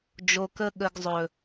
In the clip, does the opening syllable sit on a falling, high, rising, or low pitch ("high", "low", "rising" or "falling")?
low